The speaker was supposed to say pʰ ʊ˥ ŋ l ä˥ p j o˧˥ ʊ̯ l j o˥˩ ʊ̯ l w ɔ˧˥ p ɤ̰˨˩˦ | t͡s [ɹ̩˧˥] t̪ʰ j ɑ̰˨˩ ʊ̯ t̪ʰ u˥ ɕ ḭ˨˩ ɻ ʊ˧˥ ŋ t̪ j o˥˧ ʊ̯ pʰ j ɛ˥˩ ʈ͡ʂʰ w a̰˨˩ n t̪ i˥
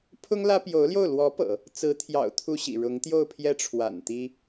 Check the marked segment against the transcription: correct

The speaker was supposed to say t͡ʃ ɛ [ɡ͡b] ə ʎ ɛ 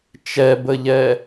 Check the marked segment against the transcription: incorrect: b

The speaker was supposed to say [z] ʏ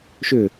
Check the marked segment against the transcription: incorrect: ʃ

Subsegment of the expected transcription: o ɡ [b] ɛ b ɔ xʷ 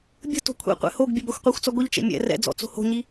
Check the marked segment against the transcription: incorrect: bʲ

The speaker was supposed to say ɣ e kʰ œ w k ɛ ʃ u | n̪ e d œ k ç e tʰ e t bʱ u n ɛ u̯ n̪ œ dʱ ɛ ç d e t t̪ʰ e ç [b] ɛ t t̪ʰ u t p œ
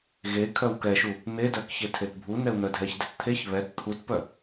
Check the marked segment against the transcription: incorrect: β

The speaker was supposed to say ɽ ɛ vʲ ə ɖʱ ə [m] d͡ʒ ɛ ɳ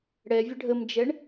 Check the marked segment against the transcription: correct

